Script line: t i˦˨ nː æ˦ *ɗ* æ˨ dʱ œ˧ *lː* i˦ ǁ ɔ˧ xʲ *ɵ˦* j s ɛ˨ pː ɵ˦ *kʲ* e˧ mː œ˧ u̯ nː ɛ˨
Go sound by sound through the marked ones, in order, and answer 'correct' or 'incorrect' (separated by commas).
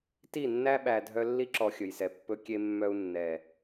incorrect, correct, incorrect, correct